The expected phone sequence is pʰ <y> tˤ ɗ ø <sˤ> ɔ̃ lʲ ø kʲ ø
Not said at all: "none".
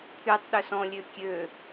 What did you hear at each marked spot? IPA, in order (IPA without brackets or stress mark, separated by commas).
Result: y, s